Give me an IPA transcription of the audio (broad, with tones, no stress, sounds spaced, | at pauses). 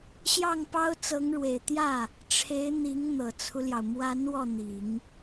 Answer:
ɕ j ɑ˥˩ ŋ p ɑ˥ ʊ̯ t͡s ɤ˧˥ ŋ ɻ w e˨˩ ɪ̯ t̪ j ä˥˩ | ʈ͡ʂʰ e˧˥ ɪ̯ n̪ i˧˥ ŋ n̪ ɤ˨˩ t͡sʰ u˦ l j ɑ˩ ʊ̯ m w a˧˥ n w ɔ˥˩ n̪ i˨˩˦ ŋ